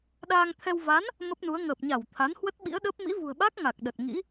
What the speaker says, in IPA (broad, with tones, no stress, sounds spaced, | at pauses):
ɗ aː˧ ŋ t̪ʰ ɛ˧ w v a˨˦ n | m ə˦˥ p̚ n u˨˦ ə̯ ŋ əː˨˩ p̚ ɲ a˧˩ w t̪ʰ a˨˦ n h w ə˦˥ t̚ ɓ ḭ˧˥ ə̯ ɗ əː˦˥ p̚ m ḭ˧˥ v ṳ˨˩ ə̯ ɓ a˦˥ k̚ ŋ a˨˩ k̚ ɗ ə˨˩ t̚ ŋ ḭ˧˥